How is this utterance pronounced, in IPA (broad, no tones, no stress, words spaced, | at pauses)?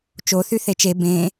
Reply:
t͡ʃoθy θet͡ʃe bẽː